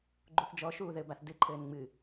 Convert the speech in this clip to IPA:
ɡ͡ǃ u θ d͡ʒ ɔ ʃ uː ð ɘ b a θ d ɨ ǃʰ ɘː n ŋ͡m ɨ

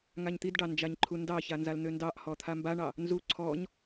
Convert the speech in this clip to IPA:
ŋ a ɲ t̪ i d ɖ ɑ n d͡ʒ a ɲ ǃʰ u n d ɑ ç a n z a l n̪ ø n d ɑ ʔ h ɔ t̪ʰ a m b a ɳ ɑ | n z u ǀʰ ɔ ɲ

